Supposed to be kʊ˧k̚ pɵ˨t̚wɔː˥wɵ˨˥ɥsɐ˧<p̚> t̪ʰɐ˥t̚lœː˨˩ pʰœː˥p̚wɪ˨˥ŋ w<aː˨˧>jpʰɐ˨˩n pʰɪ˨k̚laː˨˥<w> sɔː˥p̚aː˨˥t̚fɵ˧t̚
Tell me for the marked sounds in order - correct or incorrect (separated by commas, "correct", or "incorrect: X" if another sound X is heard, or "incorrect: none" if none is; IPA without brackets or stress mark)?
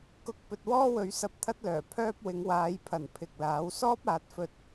correct, correct, correct